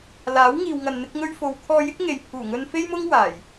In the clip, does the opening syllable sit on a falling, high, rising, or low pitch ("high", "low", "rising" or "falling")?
rising